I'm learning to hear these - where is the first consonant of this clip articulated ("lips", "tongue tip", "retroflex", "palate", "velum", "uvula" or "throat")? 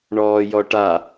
retroflex